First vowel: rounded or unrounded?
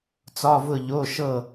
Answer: rounded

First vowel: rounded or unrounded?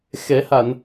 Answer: unrounded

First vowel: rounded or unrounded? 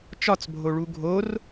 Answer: rounded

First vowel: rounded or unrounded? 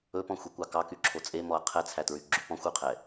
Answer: rounded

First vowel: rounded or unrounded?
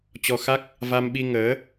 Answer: rounded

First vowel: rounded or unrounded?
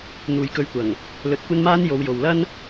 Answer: rounded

